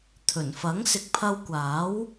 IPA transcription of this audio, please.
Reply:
t̪ʰ ɵ˨˩ n f ɐ˨˥ ŋ s ɪ˨˥ k̚ pʰ ɐ˧ w kʷ aː˨˥ w

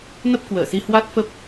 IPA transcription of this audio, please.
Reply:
n ə˦˥ p̚ k w əː˧˩ s i˧ h w a˦˥ t̚ f ə˦˥ p̚

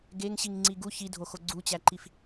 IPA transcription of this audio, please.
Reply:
ɡ e ŋ ɕ i ŋ ŋ͡ǀ i ɡ u ç i dʱ o x o ɡ͡ǀ u t͡ɕ æ ǃ i f

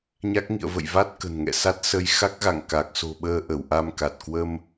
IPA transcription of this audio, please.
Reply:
ɲ a˦˥ k̚ ŋ ḭ˧˨ ə̯ v ə̰˧˨ j v a˦˥ t̚ k ə̤˨˩ n ŋ ɛ̰˧˨ s a˦˥ t̚ s ə˧ j x a˦˥ k̚ ɣ a̰˧˨ ŋ k a˨˩ k̚ s o̤˨˩ ɓ əː˧ ʔ ə˧˩ w ʔ a˧ m k a˨˩ t̚ k w ə˧ m

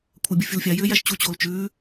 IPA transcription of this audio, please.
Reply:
kʷʰ æ bʲ ʊ fʲ ʊ l fʲ a j ʏː j æ ʃ t͡ɕ u t͡ɕ oː l t͡ʃ ʉː

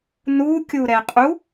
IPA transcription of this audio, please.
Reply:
n u kʲ u ɾ ɛ qʼ u

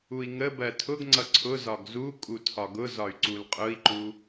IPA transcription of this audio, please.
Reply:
u i̯ ŋ ə b ɜ tʰ ʊ ɡ ŋ͡ǀ ʌ ǀʰ ʊ z ɒ ɡ z u kʼ u tʰ ɒ ɡ ʊ z ɒ y̯ ǀ u l qʼ ʊ i̯ ǃ u

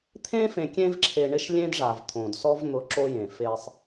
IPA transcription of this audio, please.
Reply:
t̪ʰ ẽ˦ f ẽ˨ kʲ ẽ˦ v ǁʰ e˨ ɳ ɪ˦ ʃ lʲ ẽ˦ d ʐ a˨ v t̪ʰ õ˨ d s ɔ˦ v n̪ ʊ˨˦ ǁ o˦ j ẽ˨ f e˦ sˤ

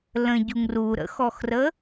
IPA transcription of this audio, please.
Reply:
l ə̃ ɟ u ŋ r u ɾ ə̰ x ɔ x r ə

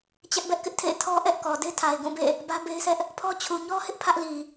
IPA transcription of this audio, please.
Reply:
t͡ɕ ɛ˦ ʔ b ɛ˦ ʔ k ɪ˦ ʔ tʰ ḛ˦˨ ɪ̯ tʰ ɔ˦ ʔ ɛ˦ ʔ k ɔ˨ d e˦ tʰ a˨ ɪ̯ ɡ ũ˦˨ b ḛ˦˨ | b ä˦ b e˦ ɪ̯ s ɛ˦ ʔ | pʰ ɔ˦ t͡ɕʰ u˨ ɲ ɔ˦ h ɪ˦ ʔ pʰ ä˦ ʔ l i˨

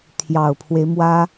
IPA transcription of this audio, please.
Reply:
t̪ʰ j ɑ˨˩ ʊ̯ pʰ w e˦ ɪ̯ m w ä˥

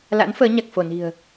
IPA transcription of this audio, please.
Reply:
l a̰˧˥ n f əː˨˦ ɲ a˨˩ k̚ f o˧˩ n i̤˨˩ ə̯

